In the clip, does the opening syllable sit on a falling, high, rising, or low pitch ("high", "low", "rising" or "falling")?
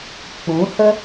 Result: rising